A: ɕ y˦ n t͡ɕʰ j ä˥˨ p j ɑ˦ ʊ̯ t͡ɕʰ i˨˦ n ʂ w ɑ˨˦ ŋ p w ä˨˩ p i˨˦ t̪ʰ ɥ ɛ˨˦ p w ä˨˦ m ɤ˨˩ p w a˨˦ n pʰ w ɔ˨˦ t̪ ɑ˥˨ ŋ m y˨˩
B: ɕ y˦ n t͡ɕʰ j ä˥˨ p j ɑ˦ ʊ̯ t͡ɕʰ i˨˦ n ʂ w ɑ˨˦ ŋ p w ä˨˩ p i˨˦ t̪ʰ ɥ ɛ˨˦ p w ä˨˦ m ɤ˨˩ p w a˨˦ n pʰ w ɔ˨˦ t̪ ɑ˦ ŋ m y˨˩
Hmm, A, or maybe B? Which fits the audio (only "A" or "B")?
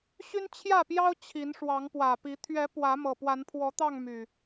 A